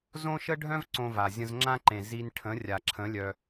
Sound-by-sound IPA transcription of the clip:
z õ˦ ʃ ə˦ ɖʱ œ̃˦ v ǀ õ˧ v a˨ zʲ ə̃˧ z ŋ͡ǁ ã˦ ǃ ẽ˨ z i˧ n ʈʰ ə̃˨˦ rʲ a˨ ǁʰ ə̃˨˦ lʲ œ˧

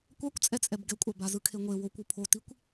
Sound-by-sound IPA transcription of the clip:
kʷ a kʷ t͡sʼ ɛ t͡sʼ ɛ b ɡ ɛ kʷʼ a b a z ɯ kʰ e ŋʷ e w o kʷ u pʰ o t i kʷ

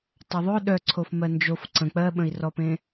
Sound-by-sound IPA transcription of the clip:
tˤ œ ðˤ ɵ ɗ œ ǀʰ o f m ɜ n d͡ʒ o f ǀ ə̃ k͡p ɜ ɓ ə̃ i̯ r ɔ p ẽ

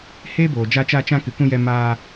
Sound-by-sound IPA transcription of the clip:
h eː˦ b oː˨ d͡ʒ a˧ t͡ʃ a˧ t͡ʃ ã˧ k ɨ˨ k ũ˧ j ɛ˧ m aː˧

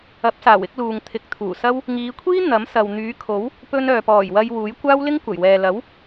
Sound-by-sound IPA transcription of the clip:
ɐ˨˥ p̚ s aː˨˩ w ɪ˨˥ k̚ l uː˨ ŋ t̪ʰ ɪ˨˥ k̚ t̪ʰ uː˨˩ s ɐ˥ w | ŋ iː˨˧ kʷʰ iː˥ n̪ ɐ˨˥ m s ɐ˨ w n̪ yː˨˥ kʰ o˨˥ w | p ɵ˧ n œː˨ p ɔː˨˩ j w ɐ˧ j w uː˨˥ j kʷ aː˥ w l ɪ˥ ŋ kʷ ɐ˨˩ j w ɛː˨ l ɐ˨˥ w

